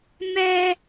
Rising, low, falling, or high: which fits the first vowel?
high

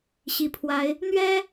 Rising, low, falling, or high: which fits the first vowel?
low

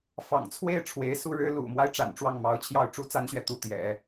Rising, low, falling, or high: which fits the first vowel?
low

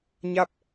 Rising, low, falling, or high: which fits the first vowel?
falling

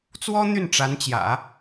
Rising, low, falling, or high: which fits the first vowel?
high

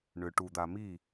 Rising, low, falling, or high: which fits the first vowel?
low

